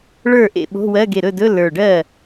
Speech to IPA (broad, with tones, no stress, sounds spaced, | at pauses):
ɭ ə˞˥˩ ʔ ḛ˥˩ ɓ o̤˧˥˧ w ɜ˧˥˧ ɡ e˧˩ ɾ ɵ˥˩ d ɵ˧˥˧ l ə˞˧˩ ɖ ɜ˥˩